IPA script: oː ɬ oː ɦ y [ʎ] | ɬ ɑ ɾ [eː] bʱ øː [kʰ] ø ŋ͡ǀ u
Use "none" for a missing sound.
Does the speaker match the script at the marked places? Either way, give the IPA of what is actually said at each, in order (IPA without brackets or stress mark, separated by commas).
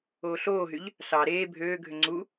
ʎ, eː, ɡʱ